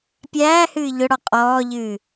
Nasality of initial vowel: oral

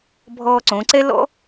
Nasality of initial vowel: oral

